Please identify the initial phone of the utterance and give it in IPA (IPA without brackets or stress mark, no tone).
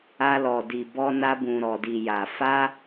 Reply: a